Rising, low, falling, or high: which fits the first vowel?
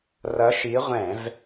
rising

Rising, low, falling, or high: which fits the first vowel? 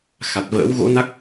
low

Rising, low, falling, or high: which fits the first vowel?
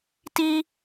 high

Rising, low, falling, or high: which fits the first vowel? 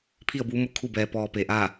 falling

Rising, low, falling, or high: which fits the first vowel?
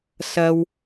high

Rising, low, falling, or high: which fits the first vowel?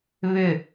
falling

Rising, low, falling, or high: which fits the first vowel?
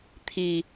low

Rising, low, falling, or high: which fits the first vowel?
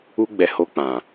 high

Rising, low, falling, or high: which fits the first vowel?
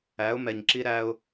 rising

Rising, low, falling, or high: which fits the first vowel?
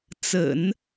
low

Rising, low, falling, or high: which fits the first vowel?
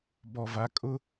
low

